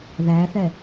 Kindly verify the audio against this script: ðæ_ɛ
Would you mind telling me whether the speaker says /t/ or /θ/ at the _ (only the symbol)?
θ